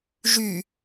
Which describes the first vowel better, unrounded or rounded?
rounded